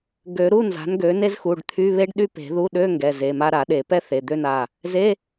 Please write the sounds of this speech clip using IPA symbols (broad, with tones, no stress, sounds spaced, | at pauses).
ɡ ø˨˩˦ ɾ u˧˥˧ n z a̤˩˥ n ɡ ø˩˥ n e˥ z x u˩˧˩ ɖ t̪ʰ y˧˥˧ β e˥ ɖ ɗ y˥ p e̤˨˩˦ ð u˧˥˧ ɗ ø˧˥˧ ŋ ɡ ɛ˩˧˩ z e˩˧˩ m a˥ ɾ a˨˩˦ ɗ e˨˩˦ p ɛ˥ θ e˩˧˩ d̪ ø˥˧ n a˩˧˩ | z e˧˥˧